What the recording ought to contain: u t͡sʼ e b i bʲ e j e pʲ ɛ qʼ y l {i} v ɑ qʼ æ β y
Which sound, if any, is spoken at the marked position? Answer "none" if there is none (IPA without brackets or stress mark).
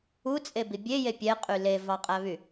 e